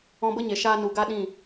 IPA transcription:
ɔ̃˧ b ə˦ ɲ e˨ ʃ aː˧ n u˨ ɡ a˦ ɗ ĩ˦˨

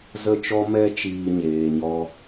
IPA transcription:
z ə˦ t͡ʃ ɔ˦ m ɛ˦ t͡ʃ iː˧ ɲ eː˨ ɲ ɔ˧

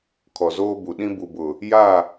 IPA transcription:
kʰ ɔ˨ z oː˦ b u˨ ɗ ĩ˦ b u˨ b ʊ˨ | j a˦˨

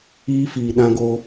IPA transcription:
iː˦ f iː˨ ɗ ã˦ ɡ o˦

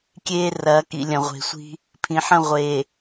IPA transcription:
kʲ eː˦ r ɐː˨˦ k ḭ˨ lʲ ɐ̃˨ ʁʷ e̤˨ sʷ i̤˦ | pʰ ĩ˨ ħ ɐ̃˦˨ ʁʷ e˨

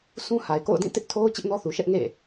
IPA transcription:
sʰ ũ˦ h a˨ ɪ̯ k o̰˦˨ ʊ̯ d ĩ˦˨ t ɪ˦ ʔ tʰ o˦ ʊ̯ t͡ɕ ɪ˦ ʔ n ɔ˦ θ u˨ ʃ ɛ˦ ʔ ŋ ḛ˦˨

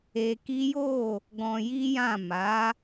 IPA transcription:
e˧ k i˦ j o˦˨ | ɡ ɔ̃˧ j i˦ j ã˦˨ m a˨˦

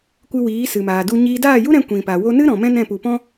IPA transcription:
kʷ ɨ˧ w iː˨˦ s ɨ˨ m aː˨ d u˧ ɲ iː˦ d aː˦˨ j u˦ ɾ ɛ̃˧ kʷ ĩ˨ p a˨ w o˧ n ɨ˦ ɾ ɔ̃˨ m ɛ̃˦ n ɛ̃˦˨ p u˨ p ɔ̃˦

